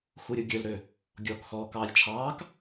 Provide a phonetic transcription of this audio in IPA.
x u ɾʲ u ɡʲ ɵ l ɾ ø | ɡʲ ɔ k x ɔː k ɑː lʲ t͡ʃʰ ɑː k

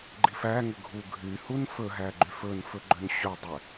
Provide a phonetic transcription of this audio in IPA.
ɡ͡ǃ i f æ ŋ ɵ ɡʱ u ɡʱ y h u n f ɵ ɦ æ ɡ͡ǃ y f ɵ n f ɵ ɡ͡ǃ ø n ɕ ø dˤ ø

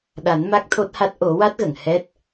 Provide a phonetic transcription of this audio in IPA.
ɗ a˨˩˦ n m a˦˥ k̚ t̪ʰ o˦˥ t̚ h a˦˥ t̚ ʔ o˨˩˦ w a˦˥ t̚ ɣ ə˨˩˨ ŋ h ɛ˦˥ t̚

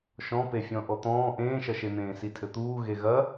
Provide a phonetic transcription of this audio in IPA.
ʃ ɔ̃ p e fʲ ɔ̃ ʔ ɔ t̪ ɔ̃ː ʔ ẽː ʃ ɐ ʃ e n̪ ẽː s i tʰ ɘ t̪ uː ɣ e ɣ ɐ

